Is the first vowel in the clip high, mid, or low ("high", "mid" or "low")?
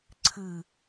high